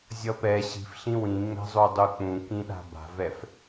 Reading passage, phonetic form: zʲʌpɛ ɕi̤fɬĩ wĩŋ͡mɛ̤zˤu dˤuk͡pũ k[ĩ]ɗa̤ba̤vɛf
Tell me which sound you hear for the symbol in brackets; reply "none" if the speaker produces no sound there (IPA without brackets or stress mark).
ĩ